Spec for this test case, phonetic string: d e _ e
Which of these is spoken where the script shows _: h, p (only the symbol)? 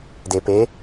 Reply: p